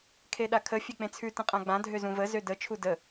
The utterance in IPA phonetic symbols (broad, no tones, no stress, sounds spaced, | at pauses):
kʰ e ɗ a kʰ ə fʲ e k͡p ẽ t͡sʰ ʉ t ə̃ qʼ ã ɡ͡b ã dʱ ø z ũ v ə z ø d ə t͡ʃʰ u d ə